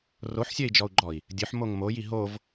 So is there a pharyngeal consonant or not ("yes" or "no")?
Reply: yes